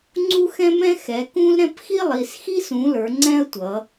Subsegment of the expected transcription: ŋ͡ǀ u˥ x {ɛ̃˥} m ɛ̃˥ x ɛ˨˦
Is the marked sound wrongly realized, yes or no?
no